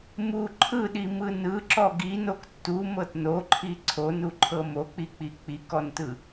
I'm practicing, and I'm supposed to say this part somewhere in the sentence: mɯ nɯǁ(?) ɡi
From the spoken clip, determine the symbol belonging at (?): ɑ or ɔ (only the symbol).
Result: ɔ